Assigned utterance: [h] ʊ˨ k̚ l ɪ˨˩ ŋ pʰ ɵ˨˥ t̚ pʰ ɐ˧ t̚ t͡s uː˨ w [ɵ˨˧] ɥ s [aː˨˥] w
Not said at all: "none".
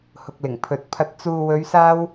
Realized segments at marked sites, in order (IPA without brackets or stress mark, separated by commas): h, ɵ˨˧, aː˧